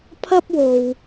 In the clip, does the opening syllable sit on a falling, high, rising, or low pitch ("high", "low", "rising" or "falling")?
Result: high